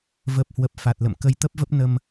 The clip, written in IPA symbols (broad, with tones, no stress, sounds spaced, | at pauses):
v ə˨˩ p̚ h w ə˨˩ p̚ f a˨˩ t̚ l ə̰˧˨ m k ə˨˦ j t̪ ə˦˥ p̚ v ə˦˥ p̚ n ə˧ m